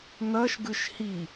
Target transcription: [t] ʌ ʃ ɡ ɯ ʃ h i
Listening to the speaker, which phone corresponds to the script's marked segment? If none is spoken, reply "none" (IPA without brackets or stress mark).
n̪